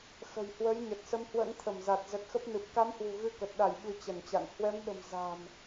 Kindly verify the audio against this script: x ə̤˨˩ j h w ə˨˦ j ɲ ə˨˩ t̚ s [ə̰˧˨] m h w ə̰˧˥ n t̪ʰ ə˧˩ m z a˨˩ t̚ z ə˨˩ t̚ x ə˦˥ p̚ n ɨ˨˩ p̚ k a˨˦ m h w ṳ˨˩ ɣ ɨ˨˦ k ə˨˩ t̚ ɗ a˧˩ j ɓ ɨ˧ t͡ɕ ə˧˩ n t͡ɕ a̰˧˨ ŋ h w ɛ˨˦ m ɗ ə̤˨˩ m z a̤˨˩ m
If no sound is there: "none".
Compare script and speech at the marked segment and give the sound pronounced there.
ə˧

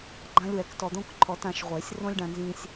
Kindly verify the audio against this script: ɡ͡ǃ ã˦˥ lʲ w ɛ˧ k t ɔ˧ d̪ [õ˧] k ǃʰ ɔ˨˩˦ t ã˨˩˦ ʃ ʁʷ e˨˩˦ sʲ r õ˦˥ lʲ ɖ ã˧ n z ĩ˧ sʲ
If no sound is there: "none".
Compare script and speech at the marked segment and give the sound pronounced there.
õ˦˥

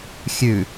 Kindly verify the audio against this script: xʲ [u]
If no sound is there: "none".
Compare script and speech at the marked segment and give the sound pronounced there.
ʉ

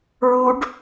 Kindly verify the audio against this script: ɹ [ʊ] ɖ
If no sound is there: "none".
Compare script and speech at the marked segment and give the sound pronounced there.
u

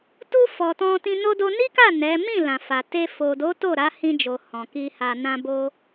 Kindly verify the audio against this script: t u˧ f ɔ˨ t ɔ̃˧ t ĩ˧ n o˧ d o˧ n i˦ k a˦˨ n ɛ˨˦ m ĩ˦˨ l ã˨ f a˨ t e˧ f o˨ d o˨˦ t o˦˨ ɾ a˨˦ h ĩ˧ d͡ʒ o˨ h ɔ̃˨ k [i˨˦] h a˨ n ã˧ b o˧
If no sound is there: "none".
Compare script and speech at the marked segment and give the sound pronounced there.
i˧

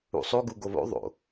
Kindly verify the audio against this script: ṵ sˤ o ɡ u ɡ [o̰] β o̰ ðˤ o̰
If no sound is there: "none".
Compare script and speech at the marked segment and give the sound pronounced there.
o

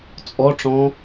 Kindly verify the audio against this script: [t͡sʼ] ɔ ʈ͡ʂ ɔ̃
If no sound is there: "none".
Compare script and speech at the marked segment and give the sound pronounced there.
t͡sʼ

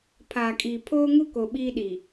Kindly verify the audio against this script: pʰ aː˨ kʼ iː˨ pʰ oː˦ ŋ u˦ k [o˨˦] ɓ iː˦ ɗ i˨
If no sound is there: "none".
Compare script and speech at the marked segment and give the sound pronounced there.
o˨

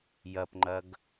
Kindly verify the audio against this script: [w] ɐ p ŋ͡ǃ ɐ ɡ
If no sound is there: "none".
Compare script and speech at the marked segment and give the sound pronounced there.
j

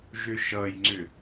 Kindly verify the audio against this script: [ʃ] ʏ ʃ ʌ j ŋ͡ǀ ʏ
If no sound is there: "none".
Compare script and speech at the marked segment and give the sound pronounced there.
ʒ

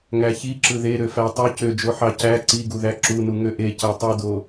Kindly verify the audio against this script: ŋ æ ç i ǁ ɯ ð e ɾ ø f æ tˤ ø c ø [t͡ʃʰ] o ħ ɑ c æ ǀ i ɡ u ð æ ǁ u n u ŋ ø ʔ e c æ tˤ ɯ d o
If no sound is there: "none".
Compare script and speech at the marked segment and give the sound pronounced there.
d͡ʒ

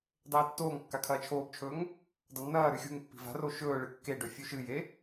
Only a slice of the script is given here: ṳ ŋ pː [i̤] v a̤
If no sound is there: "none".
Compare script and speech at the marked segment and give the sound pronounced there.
i̤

